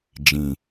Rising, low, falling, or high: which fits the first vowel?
low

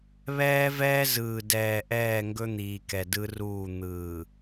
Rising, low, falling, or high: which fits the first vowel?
high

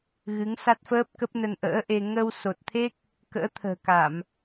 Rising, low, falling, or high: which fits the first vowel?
rising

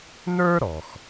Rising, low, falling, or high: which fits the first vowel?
high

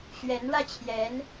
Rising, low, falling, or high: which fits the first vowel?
rising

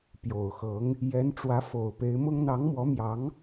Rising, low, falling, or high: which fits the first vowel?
low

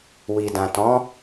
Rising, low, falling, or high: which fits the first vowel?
low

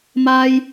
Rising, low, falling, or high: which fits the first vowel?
high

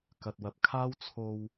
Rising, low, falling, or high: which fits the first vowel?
low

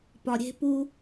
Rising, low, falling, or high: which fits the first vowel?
low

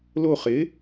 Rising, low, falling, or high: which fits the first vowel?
falling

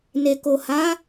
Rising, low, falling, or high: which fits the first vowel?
low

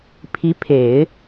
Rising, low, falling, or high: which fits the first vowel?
rising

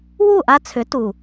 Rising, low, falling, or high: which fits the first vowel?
falling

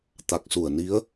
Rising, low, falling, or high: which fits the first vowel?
low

